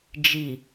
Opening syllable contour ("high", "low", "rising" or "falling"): low